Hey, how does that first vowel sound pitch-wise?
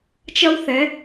high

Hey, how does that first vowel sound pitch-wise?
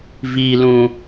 low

